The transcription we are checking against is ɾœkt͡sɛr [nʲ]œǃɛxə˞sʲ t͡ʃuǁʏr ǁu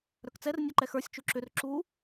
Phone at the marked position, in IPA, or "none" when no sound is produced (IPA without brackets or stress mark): nʲ